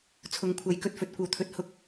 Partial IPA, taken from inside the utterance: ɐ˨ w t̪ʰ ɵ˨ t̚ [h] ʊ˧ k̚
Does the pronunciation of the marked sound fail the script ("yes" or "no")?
no